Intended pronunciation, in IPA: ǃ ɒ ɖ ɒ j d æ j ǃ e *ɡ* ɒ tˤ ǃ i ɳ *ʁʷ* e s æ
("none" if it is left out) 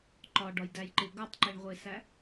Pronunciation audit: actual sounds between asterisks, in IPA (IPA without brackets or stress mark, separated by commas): ɡ, ʁʷ